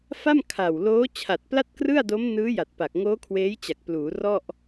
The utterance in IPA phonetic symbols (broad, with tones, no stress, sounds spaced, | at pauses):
f a˥˩ m kʰ a˨˩ w l oː˦˥ t͡ɕʰ a˨˩ t̚ p l a˥˩ t̚ k r ɯ˥˩ a̯ d o˦˥ m n ɯː˦˥ j a˨˩ t̚ p a˨˩ k̚ ŋ oː˦˥ kʰ w eː˦˥ j t͡ɕ a˨˩ k̚ p l uː˩˦ r ɔ˥˩ ʔ